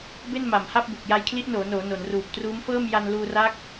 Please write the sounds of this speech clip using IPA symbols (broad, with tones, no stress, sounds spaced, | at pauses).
b e˥˩ n m a˨˩ m h a˥˩ p̚ b u˨˩ k̚ j a˧ j kʰ l i˦˥ ʔ n oː˩˦ n oː˩˦ n o˩˦ n r uː˨˩ p̚ t r uː˦˥ m f ɤː˥˩ m j a˧ n l uː˧ r a˦˥ k̚